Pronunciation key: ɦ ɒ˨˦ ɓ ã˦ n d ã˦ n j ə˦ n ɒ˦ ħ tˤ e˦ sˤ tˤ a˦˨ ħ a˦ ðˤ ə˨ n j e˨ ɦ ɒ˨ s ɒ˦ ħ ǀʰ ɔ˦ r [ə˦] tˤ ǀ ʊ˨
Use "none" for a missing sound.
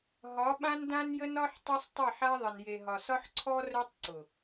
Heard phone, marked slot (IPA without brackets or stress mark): œ˦